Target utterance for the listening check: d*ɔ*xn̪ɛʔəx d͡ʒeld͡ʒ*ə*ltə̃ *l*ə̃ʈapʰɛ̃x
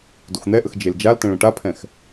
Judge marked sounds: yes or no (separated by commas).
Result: no, no, no